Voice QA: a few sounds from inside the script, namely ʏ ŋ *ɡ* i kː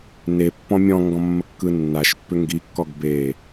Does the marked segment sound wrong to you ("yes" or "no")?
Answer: no